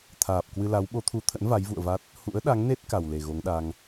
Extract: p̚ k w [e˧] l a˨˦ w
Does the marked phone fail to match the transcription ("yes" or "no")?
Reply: yes